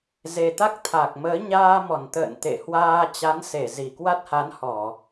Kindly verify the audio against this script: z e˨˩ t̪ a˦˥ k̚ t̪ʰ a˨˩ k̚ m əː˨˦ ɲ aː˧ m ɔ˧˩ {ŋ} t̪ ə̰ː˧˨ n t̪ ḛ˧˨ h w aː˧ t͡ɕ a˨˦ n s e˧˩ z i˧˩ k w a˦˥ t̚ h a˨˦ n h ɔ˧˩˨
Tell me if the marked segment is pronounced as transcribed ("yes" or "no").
no